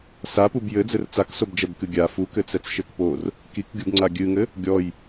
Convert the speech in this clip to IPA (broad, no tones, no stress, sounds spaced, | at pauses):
s a p u b j ɘ d͡z ɘ r t͡s a k s o b d͡ʒ ɛ b k ɨ ɡʲ a f u k ɘ t͡s ɛ t͡s ʃ ɘ k p o r | k i k ɡʲ u b ŋ͡ǀ a ɡʲ ɨ ŋ ɘ | ɡʲ ɔ j